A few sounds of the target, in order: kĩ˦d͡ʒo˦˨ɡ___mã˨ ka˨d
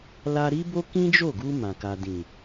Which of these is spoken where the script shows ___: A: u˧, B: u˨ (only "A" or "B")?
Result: A